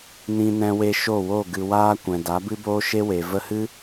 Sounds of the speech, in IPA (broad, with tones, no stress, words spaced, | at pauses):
nĩ˧nɛ̃˧we˧ ʃo˦˨wo˦˨ ɡɨ˨waː˧ kʷɛ̃˨da˨˦ bɨ˦boː˦ʃe˦we˨ və˧hɨ˦